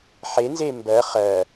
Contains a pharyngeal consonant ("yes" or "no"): yes